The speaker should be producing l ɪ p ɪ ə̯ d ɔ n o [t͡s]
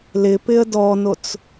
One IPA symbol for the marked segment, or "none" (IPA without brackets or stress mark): t͡s